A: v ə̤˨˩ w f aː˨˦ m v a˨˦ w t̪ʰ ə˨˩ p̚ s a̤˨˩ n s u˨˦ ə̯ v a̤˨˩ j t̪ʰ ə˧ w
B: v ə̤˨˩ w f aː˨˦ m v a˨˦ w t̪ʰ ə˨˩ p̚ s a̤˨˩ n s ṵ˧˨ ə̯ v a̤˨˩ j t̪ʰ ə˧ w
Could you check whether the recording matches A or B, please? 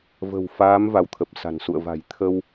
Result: B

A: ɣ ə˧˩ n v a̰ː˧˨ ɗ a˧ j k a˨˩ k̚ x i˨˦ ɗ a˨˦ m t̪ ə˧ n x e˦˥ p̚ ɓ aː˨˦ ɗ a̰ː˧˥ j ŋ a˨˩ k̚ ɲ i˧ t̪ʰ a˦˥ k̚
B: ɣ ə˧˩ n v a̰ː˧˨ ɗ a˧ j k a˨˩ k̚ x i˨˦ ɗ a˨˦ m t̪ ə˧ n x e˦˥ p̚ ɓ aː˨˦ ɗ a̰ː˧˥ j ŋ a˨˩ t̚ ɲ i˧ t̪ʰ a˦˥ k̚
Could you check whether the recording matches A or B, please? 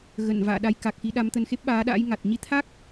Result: B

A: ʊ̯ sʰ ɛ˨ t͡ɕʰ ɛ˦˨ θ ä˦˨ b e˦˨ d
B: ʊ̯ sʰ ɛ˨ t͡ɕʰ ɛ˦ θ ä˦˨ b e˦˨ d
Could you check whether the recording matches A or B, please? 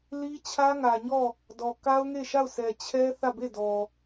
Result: B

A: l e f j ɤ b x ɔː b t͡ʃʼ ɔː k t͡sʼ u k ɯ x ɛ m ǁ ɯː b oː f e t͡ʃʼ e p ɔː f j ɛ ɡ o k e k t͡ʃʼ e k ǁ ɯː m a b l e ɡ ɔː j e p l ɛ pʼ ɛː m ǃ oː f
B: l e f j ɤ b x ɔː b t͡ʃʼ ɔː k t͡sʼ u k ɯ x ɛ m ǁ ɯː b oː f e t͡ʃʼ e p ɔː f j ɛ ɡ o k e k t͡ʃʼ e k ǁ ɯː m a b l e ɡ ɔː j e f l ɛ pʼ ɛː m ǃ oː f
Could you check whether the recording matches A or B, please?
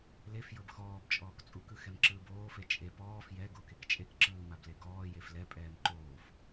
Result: B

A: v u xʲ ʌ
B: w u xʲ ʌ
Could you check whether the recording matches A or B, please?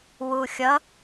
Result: B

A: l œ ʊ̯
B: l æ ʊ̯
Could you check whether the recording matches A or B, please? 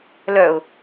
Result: A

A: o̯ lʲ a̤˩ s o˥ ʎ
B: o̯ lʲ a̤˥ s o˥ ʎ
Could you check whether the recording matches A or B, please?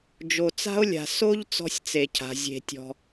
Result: A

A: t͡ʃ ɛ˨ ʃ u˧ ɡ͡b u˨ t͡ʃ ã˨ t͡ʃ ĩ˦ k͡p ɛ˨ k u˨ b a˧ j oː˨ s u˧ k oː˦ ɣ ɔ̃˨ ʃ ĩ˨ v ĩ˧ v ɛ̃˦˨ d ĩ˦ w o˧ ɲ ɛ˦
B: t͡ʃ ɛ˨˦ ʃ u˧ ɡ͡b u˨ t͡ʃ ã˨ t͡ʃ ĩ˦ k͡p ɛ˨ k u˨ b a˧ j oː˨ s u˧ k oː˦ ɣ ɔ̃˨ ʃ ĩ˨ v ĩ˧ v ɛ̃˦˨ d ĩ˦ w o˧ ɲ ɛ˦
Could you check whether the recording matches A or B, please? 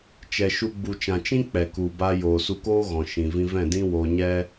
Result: A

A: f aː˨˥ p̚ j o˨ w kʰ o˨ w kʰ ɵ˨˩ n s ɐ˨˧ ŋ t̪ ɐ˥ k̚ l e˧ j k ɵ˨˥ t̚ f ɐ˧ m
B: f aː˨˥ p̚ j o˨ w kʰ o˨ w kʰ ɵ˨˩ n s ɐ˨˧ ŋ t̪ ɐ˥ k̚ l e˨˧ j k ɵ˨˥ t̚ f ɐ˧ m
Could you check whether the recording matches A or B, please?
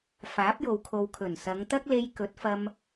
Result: A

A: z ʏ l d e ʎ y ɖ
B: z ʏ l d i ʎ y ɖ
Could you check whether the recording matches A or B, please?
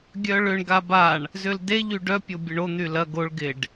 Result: A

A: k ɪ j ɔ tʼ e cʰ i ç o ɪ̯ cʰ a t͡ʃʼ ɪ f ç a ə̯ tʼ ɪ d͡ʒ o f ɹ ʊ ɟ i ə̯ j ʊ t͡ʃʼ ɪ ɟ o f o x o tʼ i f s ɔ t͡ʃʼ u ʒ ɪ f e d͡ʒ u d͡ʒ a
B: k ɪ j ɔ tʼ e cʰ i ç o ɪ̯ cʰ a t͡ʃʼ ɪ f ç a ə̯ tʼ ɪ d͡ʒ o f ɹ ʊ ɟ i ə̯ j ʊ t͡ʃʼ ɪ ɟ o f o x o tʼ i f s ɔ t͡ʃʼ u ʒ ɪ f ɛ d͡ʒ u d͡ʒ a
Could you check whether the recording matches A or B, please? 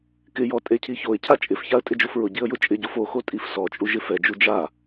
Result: B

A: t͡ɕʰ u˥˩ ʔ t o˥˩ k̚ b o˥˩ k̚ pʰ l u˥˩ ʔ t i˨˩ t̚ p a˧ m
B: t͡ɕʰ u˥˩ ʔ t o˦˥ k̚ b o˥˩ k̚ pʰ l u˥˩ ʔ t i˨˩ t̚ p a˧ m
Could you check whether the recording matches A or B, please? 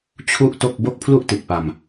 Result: A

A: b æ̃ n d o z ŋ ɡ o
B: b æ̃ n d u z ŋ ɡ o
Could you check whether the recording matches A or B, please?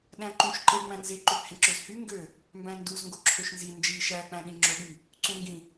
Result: B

